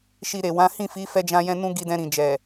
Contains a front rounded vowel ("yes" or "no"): no